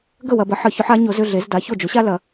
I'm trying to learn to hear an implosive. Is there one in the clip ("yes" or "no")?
no